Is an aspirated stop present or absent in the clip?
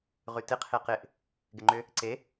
present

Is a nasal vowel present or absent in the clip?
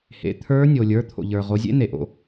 absent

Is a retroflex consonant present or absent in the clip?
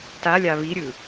absent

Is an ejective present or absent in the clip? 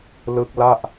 absent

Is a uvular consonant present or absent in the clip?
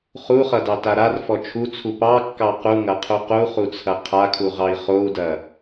present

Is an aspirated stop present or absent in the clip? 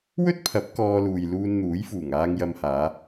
present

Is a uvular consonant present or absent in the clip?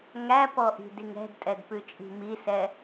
absent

